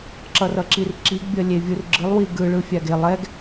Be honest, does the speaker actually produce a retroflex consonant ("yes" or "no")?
yes